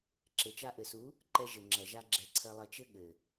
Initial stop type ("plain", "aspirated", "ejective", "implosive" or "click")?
click